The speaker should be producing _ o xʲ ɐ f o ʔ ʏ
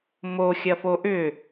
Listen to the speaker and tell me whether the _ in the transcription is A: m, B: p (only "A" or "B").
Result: A